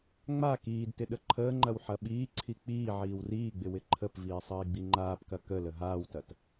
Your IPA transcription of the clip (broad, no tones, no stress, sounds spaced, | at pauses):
ŋ͡m a k iː d t ɪ ɗ ə ǃʰ əː ŋ͡ǃ ɐ w ħ ɐ ɓ iː ǀʰ i k͡p iː ʕ iː w r iː ɡ͡b ɪ w ɪ ǃʰ ə p v iː sˤ əː i̯ ɡ͡b i ŋ͡ǃ aː p k ɐ k ə l ə ɦ aː w t ɐ t